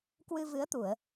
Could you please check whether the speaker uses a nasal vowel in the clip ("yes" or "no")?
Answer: no